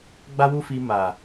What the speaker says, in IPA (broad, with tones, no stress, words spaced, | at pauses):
ɡ͡ba˦wu˦fi˧ ma˨